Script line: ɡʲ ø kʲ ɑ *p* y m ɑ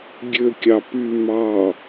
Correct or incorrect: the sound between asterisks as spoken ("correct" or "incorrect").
correct